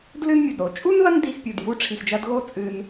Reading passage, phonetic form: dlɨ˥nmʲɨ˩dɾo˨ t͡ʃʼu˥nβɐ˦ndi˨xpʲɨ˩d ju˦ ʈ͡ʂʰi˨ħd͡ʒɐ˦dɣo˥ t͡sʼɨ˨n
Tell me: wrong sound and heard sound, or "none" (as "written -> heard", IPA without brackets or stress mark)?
ħ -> x